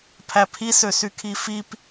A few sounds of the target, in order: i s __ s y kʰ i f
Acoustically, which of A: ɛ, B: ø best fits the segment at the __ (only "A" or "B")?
B